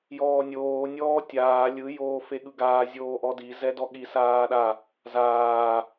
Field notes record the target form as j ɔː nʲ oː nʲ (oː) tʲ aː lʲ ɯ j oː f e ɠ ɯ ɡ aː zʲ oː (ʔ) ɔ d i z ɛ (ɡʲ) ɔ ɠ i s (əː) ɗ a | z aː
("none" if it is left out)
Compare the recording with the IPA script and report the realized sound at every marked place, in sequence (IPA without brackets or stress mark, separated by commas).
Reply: ɔː, ʔ, d, aː